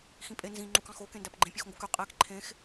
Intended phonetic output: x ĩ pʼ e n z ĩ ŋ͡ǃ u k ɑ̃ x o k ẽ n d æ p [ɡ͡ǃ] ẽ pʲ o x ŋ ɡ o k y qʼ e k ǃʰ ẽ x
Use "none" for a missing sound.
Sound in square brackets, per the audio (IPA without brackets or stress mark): ɡ͡ǃ